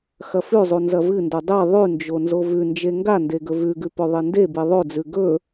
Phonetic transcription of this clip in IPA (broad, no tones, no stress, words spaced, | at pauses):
xɐfʉzˤu nzɐvɨndo dˤi ðˤʉnd͡ʒo nzovʉnd͡ʒe ŋɡande ɡɵvʉɡʉ pɵðˤindebi ðˤod͡zʉ ɡɵ